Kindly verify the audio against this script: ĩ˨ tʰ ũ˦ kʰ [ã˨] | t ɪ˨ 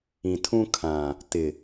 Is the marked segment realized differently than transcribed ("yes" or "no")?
no